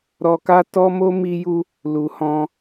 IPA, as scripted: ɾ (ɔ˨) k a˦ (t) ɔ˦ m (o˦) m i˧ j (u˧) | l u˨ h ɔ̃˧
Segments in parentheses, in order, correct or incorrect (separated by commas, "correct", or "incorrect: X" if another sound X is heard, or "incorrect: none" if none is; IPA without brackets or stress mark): incorrect: ɔ˧, correct, correct, correct